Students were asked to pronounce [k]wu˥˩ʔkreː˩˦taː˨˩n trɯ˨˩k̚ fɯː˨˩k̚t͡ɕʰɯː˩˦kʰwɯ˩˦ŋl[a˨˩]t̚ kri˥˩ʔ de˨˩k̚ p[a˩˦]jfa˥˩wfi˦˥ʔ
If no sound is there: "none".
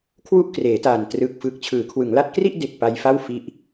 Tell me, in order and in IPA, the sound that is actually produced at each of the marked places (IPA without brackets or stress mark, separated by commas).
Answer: kʰ, a˦˥, a˧